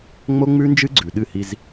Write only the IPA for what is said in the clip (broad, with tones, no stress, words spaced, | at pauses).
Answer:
ŋ͡mo˦ŋ͡mʉ˦nd͡ʒɨ˦ ɡ͡ǀʉ˨ɗɨ˦˨hi˦z